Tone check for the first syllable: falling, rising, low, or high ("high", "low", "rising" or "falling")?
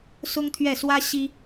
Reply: high